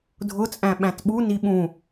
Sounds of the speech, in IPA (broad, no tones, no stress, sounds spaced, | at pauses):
dʱ ʊ t͡sʼ æ̃ ɓ æ̃ t ɓ u n i ɓ ũ